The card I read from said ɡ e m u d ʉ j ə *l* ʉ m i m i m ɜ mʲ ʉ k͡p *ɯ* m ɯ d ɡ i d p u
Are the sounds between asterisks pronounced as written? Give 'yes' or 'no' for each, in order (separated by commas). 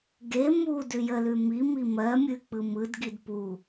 yes, yes